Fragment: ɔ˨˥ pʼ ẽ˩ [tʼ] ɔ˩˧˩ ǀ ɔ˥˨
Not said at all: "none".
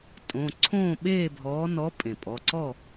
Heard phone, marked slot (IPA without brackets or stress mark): pʼ